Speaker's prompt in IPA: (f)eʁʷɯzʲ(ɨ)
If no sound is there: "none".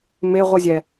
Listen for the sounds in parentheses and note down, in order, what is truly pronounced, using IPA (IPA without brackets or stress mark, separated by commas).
m, ɛ